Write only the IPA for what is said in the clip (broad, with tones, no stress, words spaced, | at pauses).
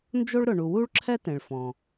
nd͡ʒo˥ɭɾʊ˩ɳu˩ wu˥ɭǁʰɛ˥ tẽ˩ɭfɔ̃˩